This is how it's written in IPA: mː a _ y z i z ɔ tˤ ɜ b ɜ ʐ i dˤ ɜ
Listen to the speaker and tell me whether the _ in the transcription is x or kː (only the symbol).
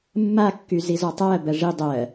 kː